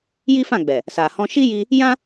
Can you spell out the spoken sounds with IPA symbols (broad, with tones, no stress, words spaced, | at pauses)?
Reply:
ji˦fã˦˨ɡ͡bɛ˨ | sa˨hɔ̃˧ ʃi˦ji˧ | jã˦